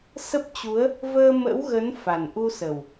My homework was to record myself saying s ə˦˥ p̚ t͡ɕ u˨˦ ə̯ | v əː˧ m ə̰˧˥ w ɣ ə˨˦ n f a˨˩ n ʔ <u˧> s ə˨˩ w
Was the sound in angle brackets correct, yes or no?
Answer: yes